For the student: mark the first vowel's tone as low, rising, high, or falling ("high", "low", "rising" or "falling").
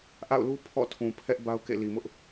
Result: falling